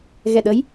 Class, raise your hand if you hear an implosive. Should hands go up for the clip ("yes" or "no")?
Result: yes